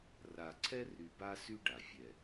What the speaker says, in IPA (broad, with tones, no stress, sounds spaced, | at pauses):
r a˨ ǀʰ ɛ˦ r y˨ b a˦ s y˦ ɖ a˨ fʲ ɛ˨